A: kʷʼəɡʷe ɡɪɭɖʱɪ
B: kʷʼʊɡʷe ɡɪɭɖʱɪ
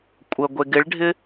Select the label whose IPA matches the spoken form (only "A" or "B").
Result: A